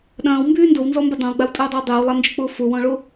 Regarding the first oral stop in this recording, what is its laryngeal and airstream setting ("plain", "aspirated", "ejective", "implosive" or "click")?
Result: implosive